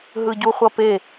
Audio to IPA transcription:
ɦ ɯ ɟ u χʷ ʌ p e

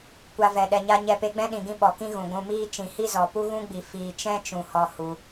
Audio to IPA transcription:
kʷ a˧ v ɛ˨ ɗ ɛ˨ ɲ a˧ ɲ ɛ˧ p e˧ ɡ͡b ɛ̃˦ ɗ ĩ˨ ɡ ĩ˧ ɓ ɔ˨ k ĩ˦ ɣ ũ˨ ɡʷ ũ˧ m iː˦ t͡ʃ ĩ˨ h i˦ z ɔ˨ p u˦ ɣ ũ˦ ɡ͡b i˨ f iː˨ t͡ʃ ɛ̃˦ t͡ʃ ũ˨ h ɔ˧ h u˧

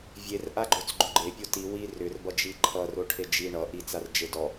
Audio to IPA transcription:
vʲ e r ʔ a ɡ͡ǃ o t͡s ɡ͡ǃ ʏ ɡ͡ǃ e pʲ o t i w i r ʏ r b ʌ d͡ʒ i ǃʰ ʌ r o ʈʰ e d͡ʒ i ɳ ʌ ʔ i t͡s a r d͡ʒ e d ɔ

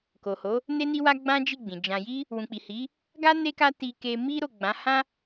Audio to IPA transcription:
k o˨ h o˨˦ | n e˧ n i˧ w a˧ ɡ͡b ã˦ d͡ʒ i˦˨ ɡ͡b ĩ˨ d͡ʒ ã˧ j i˦ | w ũ˨ k͡p i˨ h i˨˦ | ɡ a˦ n e˦ k a˦ t i˧ k e˧ m i˦ ɾ o˦˨ ɡ͡b ã˨˦ h ã˦

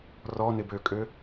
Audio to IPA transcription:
r ɔ n ɪ b ø kʼ ø

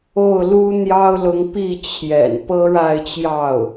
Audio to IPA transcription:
o˥˩ ʊ̯ l u˥ n̪ j ɑ˥ ʊ̯ l ʊ˧˥ ŋ p i˥˩ t͡ɕʰ j ɛ̰˨˩ n p ɤ˥ ɻ a˥˧ ɪ̯ t͡ɕ j ɑ˥˩ ʊ̯

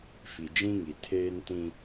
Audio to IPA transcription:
f i˨ d͡ʒ ĩ˦ ŋ i˨ tʰ eː˦ n t ĩ˦

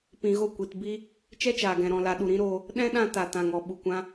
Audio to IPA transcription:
p ĩ˨ ɣ o˦˨ kʷ i˨ t b i˦ | t͡ʃ ɛ˦ t͡ʃ aː˨ ɡ ɛ̃˨ ɾ ɔ̃˨ l a˨ ɗ u˨ ɾ ĩ˨˦ ɾ oː˧ | ɗ ɛ̃˦ ɗ ã˧ t a˨ t ã˨ ŋ ɔ˨ ɓ u˨ kʷ ã˧

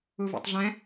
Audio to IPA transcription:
u v ṵ tˤ ɮ ɛ̃

